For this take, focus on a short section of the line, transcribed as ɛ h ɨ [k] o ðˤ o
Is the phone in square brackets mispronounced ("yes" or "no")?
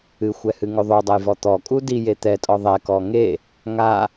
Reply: yes